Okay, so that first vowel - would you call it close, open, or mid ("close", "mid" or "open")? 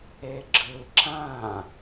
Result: mid